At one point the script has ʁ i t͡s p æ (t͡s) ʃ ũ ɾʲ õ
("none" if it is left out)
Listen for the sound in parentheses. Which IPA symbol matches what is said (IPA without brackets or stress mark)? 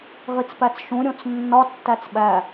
t͡s